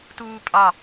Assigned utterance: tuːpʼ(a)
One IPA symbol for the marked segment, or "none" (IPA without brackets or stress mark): ɑ